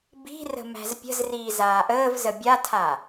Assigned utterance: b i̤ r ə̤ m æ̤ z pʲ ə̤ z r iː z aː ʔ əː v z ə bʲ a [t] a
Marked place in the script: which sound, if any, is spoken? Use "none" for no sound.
tʰ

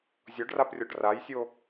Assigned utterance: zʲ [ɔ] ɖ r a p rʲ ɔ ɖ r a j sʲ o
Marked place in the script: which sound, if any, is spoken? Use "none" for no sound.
ɔ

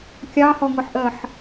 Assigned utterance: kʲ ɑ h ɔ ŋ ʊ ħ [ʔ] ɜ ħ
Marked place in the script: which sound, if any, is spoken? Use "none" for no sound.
ʔ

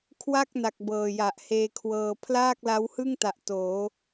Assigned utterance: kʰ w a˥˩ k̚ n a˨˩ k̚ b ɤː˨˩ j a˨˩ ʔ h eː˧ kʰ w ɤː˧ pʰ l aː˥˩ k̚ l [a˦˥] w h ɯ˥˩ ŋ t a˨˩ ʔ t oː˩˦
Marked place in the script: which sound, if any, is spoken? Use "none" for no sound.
a˦˥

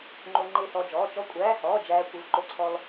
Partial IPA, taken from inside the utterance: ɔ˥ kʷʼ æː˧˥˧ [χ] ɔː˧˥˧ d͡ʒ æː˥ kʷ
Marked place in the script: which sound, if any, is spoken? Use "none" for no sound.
h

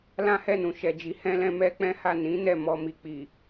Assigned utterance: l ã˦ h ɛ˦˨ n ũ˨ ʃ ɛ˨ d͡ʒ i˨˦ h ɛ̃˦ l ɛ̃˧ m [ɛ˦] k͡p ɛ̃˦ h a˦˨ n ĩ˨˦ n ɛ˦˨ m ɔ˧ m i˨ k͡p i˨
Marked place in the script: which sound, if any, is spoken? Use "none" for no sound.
ɛ˦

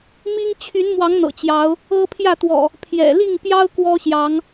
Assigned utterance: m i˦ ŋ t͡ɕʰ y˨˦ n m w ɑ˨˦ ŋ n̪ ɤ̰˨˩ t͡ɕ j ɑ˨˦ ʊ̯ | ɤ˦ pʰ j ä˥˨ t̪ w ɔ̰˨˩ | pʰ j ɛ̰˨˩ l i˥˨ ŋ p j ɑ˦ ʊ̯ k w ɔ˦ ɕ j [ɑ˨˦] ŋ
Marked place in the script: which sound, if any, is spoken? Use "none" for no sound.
ɑ˨˦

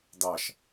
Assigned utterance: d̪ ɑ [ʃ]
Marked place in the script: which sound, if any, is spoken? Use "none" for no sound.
ʃ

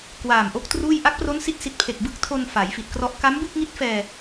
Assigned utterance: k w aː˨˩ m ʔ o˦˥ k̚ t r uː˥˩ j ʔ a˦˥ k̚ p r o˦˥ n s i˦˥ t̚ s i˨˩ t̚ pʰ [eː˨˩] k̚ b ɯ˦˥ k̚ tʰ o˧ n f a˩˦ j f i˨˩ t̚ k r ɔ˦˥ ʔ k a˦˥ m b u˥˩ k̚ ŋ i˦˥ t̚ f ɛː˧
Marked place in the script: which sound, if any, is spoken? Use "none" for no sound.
e˨˩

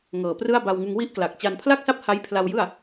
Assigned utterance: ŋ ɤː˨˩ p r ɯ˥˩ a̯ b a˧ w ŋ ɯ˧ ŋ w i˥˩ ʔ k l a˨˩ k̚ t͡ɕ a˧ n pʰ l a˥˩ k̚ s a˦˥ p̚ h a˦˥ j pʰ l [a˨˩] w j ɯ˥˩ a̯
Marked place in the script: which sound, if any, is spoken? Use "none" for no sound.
a˧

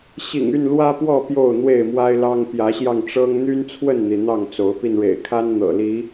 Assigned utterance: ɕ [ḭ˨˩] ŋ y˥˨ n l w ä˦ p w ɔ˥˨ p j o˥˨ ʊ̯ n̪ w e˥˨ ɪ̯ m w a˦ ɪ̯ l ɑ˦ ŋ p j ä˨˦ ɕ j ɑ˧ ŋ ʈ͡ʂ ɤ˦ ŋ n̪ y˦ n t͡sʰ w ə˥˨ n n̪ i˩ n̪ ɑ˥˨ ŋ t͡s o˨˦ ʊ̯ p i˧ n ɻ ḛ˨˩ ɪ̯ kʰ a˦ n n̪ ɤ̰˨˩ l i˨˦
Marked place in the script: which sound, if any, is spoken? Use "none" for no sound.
ḭ˨˩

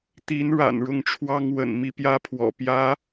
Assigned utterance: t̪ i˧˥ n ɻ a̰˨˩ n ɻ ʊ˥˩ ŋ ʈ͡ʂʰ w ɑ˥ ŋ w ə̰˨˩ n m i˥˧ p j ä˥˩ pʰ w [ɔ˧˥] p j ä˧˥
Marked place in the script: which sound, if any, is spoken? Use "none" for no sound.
ɔ̰˨˩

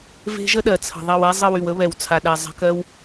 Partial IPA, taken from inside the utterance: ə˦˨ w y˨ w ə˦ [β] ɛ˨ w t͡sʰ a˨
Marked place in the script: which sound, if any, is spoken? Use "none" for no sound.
β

